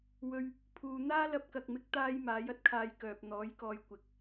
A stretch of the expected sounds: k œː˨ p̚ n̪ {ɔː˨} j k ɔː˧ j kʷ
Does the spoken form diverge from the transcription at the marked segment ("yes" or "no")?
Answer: yes